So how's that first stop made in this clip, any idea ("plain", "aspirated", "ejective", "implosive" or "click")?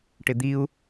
plain